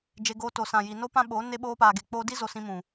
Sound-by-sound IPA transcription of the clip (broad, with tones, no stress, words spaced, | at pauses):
d͡ʒe˧ɡoː˧ to˨sã˨ji˨no˦ pã˦ɓo˨˦ ne˦ ɓoː˧paː˨ɡe˨ k͡poː˧di˦ zo˧ sĩ˧mũ˨